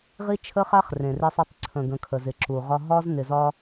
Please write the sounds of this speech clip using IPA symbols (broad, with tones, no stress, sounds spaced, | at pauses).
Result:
ʁ i˦ t͡ʃʰ ə˦ χ a˦ χ r ẽ˨ r e˦ sˤ i˦ tˤ ǀʰ ə̃˨ ɡ ə̃˨ kʰ ə˨ z ɪ˨ ǁ u˨ ʁ ɒ˦ ɦ ɒ˦ z n ɪ˨ z ɒ˦